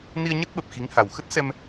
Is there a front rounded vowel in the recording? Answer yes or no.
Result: no